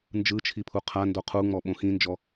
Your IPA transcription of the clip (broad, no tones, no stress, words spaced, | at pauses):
nd͡ʒɯt͡ʃʰipʰu qʰando qʰuŋ͡mɔɓõ xĩnd͡ʒɔ